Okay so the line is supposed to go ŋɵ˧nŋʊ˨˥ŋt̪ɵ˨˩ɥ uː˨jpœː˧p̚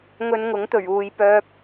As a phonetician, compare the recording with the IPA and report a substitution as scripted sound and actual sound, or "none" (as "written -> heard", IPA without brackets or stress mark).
none